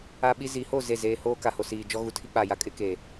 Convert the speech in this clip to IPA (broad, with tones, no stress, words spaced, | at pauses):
a˦ɓi˦ zi˨˦ho˦˨ ze˦˨zeː˦ hoː˦ka˨ho˨siː˨ d͡ʒɔ˦ɣu˨tʰi˦ k͡pa˨ja˦ kʼɪ˦keː˨